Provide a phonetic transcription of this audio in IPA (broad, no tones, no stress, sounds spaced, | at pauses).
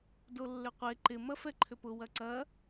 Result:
d o lː ʏ qʷ e ǃ ɪ m ɐ f ɛ ǃʰ ʏ p ʊ w ɐ ǀ ɐ